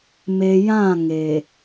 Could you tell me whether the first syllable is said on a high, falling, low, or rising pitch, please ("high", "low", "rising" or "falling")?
low